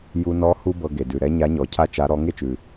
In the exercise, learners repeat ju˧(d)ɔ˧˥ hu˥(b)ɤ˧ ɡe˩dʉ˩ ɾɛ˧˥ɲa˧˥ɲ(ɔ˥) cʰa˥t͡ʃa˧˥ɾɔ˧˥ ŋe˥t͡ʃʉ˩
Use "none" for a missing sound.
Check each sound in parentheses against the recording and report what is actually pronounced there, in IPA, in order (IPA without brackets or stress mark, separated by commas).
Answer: n, b, ɔ˩˧